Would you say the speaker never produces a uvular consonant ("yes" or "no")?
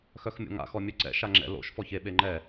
yes